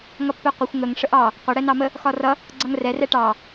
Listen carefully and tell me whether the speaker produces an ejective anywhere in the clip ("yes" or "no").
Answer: no